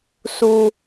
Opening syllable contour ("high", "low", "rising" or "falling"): high